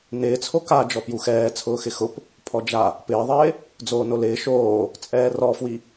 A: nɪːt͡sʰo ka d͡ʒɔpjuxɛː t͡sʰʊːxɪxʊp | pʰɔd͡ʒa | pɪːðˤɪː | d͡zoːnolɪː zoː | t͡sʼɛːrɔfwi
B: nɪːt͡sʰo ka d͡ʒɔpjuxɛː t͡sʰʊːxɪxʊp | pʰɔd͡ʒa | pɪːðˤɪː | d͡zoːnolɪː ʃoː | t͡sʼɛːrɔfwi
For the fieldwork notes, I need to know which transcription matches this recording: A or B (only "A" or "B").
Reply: B